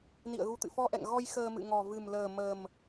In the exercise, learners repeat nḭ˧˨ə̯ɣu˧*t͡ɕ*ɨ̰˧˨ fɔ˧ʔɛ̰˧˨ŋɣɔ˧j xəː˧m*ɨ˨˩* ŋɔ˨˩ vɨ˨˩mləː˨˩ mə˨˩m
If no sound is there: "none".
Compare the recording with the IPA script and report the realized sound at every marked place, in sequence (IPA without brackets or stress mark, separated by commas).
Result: t̪, ɨ̰˧˨